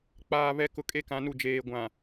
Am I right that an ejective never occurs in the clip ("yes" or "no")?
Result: no